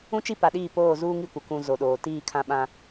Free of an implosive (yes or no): no